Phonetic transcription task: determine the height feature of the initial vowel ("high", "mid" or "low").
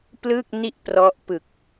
high